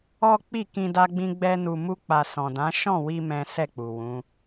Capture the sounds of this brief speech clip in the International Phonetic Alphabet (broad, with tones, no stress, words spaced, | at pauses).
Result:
ɔ˦k͡pi˦˨kĩ˧ da˦ɡ͡bĩ˦ɡ͡bɛ˦nu˧ mu˦k͡pa˧ sɔ̃˨dã˨˦ʃɔ̃˦˨wi˧ mɛ̃˦ sɛ˦˨k͡pu˨wũ˨˦